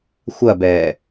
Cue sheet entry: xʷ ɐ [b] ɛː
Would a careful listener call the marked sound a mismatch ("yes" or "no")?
no